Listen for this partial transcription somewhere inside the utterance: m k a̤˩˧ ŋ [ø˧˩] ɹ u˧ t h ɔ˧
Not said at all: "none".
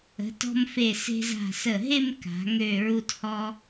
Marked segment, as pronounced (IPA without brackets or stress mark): ø˧˩